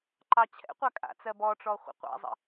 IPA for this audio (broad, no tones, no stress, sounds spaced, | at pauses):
ǃ ɑ t͡ɕʰ ɛ̰ qʷ a kʼ a̰ t͡s ɜ b ɔ ʈ͡ʂ ɔ χʷ ə̰ qʷ a̰ zˤ ə̰